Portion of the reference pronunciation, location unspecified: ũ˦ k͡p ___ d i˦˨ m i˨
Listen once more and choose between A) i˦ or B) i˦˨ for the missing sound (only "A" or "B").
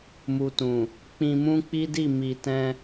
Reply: A